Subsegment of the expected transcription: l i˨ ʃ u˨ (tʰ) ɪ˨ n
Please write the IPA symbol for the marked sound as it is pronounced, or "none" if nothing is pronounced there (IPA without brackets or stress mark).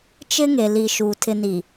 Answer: tʰ